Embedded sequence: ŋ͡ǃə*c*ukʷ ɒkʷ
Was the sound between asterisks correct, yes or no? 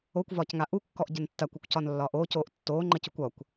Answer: yes